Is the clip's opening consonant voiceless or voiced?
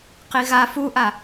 voiceless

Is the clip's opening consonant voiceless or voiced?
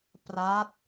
voiceless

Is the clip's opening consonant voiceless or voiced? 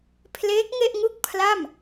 voiceless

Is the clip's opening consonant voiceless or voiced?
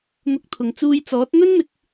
voiced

